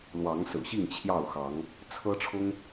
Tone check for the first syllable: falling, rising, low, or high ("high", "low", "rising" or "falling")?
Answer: rising